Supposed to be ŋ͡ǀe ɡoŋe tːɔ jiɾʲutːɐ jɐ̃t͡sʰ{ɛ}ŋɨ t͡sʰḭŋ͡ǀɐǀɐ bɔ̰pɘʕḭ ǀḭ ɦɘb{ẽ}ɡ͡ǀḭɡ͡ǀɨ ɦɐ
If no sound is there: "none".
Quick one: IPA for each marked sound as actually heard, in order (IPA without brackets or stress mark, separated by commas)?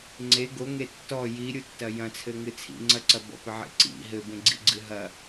ɘ, ẽ